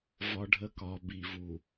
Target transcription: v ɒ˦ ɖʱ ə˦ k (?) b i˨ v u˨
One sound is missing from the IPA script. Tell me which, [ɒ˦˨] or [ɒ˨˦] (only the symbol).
ɒ˨˦